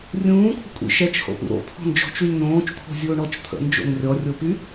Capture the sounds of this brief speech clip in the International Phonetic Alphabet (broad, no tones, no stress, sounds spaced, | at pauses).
rʲ ũː kʷʰ ə̤ kʷʼ ḭ ʃ ɛ t͡ʃ h o̰ p ṵ ɾ o̰ t̪ʰ ɔ̤ n d͡ʒ ɔ̤ t͡ʃ y lʲ n õː t͡ʃ t̪ʰ o̤ zʲ ʊː ɳ ɔ t͡ʃ t̪ʰ ə̰ n d͡ʒ o̰ n rʲ ɔ rʲ o p y